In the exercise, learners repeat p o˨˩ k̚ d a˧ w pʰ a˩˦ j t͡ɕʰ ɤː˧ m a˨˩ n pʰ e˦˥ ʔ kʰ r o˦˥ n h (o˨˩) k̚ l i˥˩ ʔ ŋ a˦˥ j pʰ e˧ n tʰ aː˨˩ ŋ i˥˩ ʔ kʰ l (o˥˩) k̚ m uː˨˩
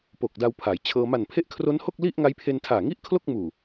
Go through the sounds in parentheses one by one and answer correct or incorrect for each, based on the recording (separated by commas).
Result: incorrect, correct